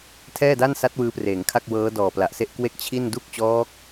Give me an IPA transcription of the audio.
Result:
tʰɛː˥˩da˥˩nsa˦˥t̚ wɯː˦˥preː˩˦ŋkʰa˥˩k̚ wɤː˦˥dɔː˨˩ pla˨˩ʔse˥˩ʔkwe˥˩k̚ t͡ɕʰi˥˩n du˥˩k̚t͡ɕɔː˦˥k̚

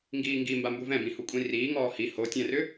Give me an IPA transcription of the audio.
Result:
ŋɡiːŋɡi mbambuvɛ̃bĩ hukʷʼĩriːŋɔː hi hotʲɛ̃rʏ

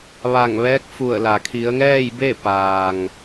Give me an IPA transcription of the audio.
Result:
ʋa˧˩ŋʋɛː˧˥k̚fu˧˩ə̯la˩ kʰi˩˧ə̯ŋɛː˥˨jbe˥˨ paː˩ŋ

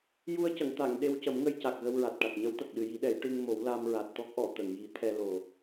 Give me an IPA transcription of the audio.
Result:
ju˧ə̯cə˨˩˨ŋt̪a˨˩˨ŋ ɗe˧wcə˨˩˦mŋə˧jca˨˩k̚ ɣə˧wɹa˨˩t̚ʈa˨˩t̚ ɲə˧˥wt̪ə˨˩k̚ ɗɨ˨˩ji˨˩˦ɗɛ˨˩˦j ʈɨ˧ŋ mo˨˩˦w la˧mɹa˨˩t̚t̪ɔ˦˥k̚ʔɔ˨˩˨ t̪ə˨˩˨ŋji˨˩˦t̪ʰɛ˧lo˨˩

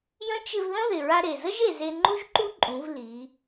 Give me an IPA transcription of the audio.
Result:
jə̃˧˥t͡ʃɪ˧v ðə̃˥ðɪ˩ ɹa˧ɾe˩ zə˥ʒe˩ze˧ ŋ͡ǃu˥ʒǃu˥ǃʼũ˩˧v li˩˧

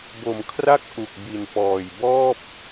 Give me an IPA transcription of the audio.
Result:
bo˨˩mkʰra˥˩k̚ ʔu˨˩k̚bi˨˩npɔː˨˩jbɔː˥˩p̚

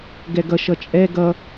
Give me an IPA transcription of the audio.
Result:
ɡɛɡʌʃʌ t͡ʃʼɛ ɡʌ

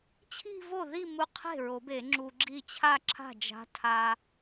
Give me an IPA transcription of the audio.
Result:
t͡ɕʰi̤˥˧vo˥˩ ði˥˧mu˧qʰe̤˥˩ ɹo˨˩˦be˨˩˦ ŋ͡ǁu˧ɡ͡ǁi˥˧ t͡ɕʰa˥˧ǁʰa̤˥˩d͡ʒa̤˧˥tʰa˧

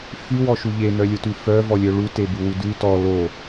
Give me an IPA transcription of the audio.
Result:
fy wɔʃuʎe nœlʲotʉfœ vɔlʲœɭu tebuwudʉ tɔ lo

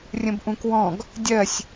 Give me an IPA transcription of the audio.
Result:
rʲə̃bʔũkwɔ̃ɡ | dʲɜsʲ

